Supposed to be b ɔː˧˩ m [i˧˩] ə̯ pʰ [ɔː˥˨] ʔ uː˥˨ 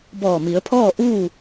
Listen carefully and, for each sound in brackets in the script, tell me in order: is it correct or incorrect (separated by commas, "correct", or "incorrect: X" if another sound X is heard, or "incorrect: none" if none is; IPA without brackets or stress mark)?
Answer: incorrect: i˩˧, correct